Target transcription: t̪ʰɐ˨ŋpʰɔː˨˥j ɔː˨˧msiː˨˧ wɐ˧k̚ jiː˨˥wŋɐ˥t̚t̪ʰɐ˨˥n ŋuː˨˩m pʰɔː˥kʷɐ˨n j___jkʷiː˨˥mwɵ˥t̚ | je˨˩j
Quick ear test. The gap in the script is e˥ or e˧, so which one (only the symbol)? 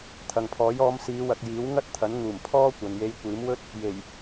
e˧